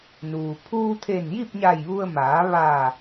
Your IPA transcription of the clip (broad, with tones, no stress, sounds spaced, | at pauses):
n uː˩ pʰ uː˧ t̪ʰ e˧˩ n j i˥˨ p̚ ɲ a˧˩ j ʋ u˧ ə̯ m aː˩˧ ʋ aː˧˩